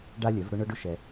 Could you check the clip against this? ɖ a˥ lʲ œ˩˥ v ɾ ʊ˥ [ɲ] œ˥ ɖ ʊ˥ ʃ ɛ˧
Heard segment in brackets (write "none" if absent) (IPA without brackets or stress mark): ɳ